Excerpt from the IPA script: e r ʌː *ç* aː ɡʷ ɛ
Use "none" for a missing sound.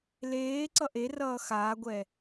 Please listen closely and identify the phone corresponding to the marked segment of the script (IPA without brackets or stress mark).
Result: x